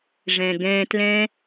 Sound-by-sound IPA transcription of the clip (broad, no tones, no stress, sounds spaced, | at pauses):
ʐ ɛ̃ ɡ ɛ̃ t l ɛ̃